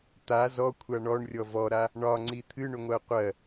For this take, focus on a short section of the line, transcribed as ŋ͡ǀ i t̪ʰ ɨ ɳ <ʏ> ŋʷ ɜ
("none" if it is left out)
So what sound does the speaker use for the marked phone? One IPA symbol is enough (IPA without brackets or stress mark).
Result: ʏ